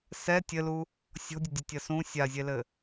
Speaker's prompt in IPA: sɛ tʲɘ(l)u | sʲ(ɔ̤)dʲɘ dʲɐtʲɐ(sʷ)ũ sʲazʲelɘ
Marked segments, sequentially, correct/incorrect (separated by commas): correct, correct, incorrect